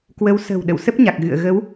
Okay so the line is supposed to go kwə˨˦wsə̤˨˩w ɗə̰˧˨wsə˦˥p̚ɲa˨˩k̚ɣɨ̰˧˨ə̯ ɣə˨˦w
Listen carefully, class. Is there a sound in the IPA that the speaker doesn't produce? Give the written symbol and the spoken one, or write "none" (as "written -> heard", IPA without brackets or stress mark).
none